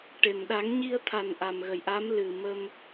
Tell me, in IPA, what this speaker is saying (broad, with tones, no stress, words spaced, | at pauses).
ʈe˨˩m ɗa˨˩˦ŋɲi˧ə̯t̪ʰa˨˩n ʔa˨˩mɣə˨˩j ʔa˧˥m lɨ˨˩ mə˧m